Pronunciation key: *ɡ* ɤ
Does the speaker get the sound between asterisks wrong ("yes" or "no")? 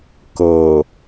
yes